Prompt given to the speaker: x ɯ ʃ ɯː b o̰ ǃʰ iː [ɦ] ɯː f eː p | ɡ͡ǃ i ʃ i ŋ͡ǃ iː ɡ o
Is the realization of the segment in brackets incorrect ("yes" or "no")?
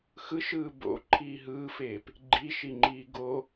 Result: no